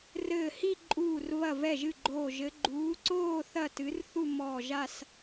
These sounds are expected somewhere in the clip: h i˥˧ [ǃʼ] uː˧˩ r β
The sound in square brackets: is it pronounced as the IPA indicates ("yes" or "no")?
yes